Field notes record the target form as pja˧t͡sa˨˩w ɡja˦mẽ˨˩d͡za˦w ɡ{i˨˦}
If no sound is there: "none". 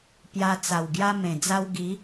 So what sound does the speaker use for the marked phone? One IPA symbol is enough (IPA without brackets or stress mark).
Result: i˨˦